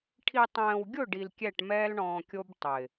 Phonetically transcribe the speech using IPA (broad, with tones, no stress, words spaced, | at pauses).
ʈʰi˨tˤɛ̃ː˨wɡʲʊ˦˨ ɖi˨lkʲɛ˦˨ʈmɛː˦l ɳɔ̃ː˨kʲo˦b tˤɪ˨